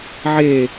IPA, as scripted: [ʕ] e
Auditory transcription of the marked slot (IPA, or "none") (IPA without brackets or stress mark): ʕ